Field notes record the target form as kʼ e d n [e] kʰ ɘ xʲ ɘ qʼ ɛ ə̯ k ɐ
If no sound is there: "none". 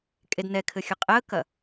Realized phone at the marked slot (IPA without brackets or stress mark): ɛ